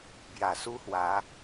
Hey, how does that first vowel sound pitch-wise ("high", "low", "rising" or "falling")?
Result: low